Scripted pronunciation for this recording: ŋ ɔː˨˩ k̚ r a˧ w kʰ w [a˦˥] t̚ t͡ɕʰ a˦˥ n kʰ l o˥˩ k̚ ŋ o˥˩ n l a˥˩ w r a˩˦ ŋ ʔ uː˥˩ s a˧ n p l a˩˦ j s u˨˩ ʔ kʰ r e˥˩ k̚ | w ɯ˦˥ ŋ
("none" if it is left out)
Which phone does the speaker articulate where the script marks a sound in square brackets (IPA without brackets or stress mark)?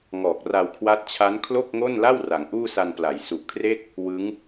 a˦˥